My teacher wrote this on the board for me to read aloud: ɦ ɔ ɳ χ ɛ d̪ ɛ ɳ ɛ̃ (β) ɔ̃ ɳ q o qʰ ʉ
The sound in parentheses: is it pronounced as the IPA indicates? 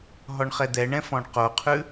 no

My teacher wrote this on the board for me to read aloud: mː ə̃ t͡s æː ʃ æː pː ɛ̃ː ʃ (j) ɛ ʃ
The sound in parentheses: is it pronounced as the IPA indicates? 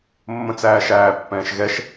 no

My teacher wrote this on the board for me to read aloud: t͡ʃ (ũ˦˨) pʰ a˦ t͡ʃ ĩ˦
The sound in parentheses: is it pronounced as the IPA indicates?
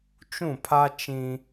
yes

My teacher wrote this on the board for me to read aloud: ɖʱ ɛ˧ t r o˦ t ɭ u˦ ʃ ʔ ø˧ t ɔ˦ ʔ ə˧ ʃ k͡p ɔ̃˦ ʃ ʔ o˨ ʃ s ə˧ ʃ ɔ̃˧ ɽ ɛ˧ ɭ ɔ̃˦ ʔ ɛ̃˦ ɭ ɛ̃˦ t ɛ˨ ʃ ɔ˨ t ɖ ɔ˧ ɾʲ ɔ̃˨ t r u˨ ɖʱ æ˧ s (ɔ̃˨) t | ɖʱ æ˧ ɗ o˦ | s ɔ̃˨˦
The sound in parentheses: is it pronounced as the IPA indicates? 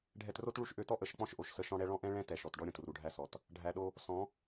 no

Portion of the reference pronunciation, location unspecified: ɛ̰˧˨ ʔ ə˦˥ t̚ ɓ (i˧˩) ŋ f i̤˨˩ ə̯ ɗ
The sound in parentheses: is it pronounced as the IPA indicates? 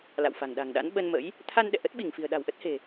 yes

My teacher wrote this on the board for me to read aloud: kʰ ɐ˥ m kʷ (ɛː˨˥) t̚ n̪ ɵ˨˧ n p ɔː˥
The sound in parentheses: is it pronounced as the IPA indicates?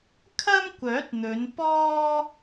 no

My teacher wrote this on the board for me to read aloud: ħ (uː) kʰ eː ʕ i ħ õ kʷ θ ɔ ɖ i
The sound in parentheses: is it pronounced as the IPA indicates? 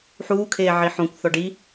yes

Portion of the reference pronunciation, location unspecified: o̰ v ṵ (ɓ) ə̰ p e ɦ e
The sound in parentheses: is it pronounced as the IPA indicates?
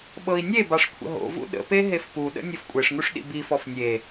no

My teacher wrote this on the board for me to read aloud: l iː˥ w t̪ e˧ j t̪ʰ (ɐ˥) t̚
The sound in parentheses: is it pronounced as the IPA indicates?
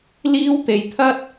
yes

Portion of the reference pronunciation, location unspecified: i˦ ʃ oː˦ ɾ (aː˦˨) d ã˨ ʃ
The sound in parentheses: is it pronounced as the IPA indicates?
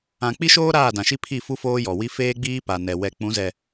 yes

